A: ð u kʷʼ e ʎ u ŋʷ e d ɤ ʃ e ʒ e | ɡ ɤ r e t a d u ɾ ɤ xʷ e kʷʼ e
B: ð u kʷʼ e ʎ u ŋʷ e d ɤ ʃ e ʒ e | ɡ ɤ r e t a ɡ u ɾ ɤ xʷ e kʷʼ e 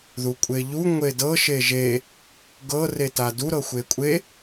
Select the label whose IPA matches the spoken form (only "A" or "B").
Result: A